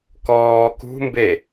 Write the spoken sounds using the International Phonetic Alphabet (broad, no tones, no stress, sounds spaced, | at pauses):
k ɔː k ṳ m b e